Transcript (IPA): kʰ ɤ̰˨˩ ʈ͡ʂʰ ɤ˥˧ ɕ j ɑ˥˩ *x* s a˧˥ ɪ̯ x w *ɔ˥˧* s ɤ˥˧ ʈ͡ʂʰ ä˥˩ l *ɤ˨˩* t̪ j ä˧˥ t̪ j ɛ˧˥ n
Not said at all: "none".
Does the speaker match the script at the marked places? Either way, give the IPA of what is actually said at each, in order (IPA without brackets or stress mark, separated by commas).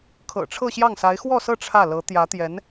ŋ, ɔ˥˧, ɤ˧˥